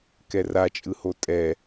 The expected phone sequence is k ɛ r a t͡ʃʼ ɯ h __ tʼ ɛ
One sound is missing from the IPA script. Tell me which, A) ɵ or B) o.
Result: B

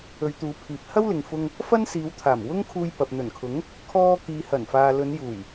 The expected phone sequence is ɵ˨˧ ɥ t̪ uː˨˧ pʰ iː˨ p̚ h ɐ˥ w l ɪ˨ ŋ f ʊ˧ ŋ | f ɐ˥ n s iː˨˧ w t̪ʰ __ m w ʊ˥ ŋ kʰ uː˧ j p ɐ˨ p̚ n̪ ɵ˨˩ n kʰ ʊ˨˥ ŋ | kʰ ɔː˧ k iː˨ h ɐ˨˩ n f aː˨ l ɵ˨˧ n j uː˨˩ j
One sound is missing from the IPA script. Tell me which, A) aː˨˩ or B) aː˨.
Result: A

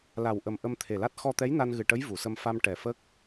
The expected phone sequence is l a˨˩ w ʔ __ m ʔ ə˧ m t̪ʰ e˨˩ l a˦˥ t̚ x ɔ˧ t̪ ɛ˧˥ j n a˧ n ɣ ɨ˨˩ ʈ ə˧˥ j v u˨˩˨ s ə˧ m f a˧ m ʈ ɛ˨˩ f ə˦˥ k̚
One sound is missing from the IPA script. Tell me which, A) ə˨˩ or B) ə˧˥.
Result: A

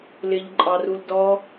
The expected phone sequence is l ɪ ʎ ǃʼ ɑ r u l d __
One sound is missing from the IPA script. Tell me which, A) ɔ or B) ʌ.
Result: A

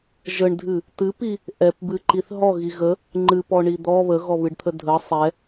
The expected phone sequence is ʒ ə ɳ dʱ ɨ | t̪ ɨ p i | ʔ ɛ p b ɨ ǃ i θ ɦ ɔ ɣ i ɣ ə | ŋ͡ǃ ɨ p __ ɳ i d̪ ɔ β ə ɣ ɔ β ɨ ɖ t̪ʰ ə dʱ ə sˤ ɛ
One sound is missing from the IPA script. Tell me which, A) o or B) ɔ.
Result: B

